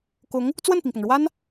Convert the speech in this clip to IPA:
kʊ˧˥ŋ | t͡swə˥˩npi˩ŋpʊ˩ŋɻwa˥n

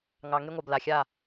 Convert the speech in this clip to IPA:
ŋɑ˨ ŋe˦ŋʷɑ˨b la˨xʲa˦˨

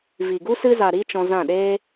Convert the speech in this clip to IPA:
vi˨ɡu˦ sɨ˧za˨ ɾi˧ t͡ʃɔ̃˧zã˦˨ɗeː˦

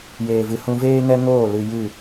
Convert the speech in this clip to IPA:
jeː˨vɨ˨hũ˧ veː˦ŋɛ˦ŋoː˦˨ lɨ˧jɨ˦˨

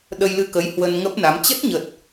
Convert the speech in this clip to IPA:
ɗə˧jlɨ˧kə˨˦j hwə˧nŋə˦˥p̚na˨˦m t͡ɕə˦˥t̚ɲə˨˩t̚

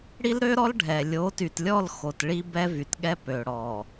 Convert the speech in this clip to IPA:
ɽi˦lɾø˦ɾɔ˦l ɖʱɛ˨ lʲo˨˦ty˨tlʲɔ˦˨l xo˨tɭi˦ bɛ˦vy˨tɠɛ˦ pø˨ɽɔ˨

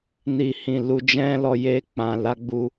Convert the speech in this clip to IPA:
ni˨hĩ˨ lu˧d͡ʒɛ̃˦lɔ˧ je˧k͡pã˨ la˧ɡ͡bu˧

